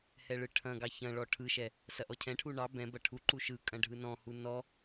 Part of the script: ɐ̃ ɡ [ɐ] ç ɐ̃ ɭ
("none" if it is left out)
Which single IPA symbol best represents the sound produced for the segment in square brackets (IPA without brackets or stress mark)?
ɑ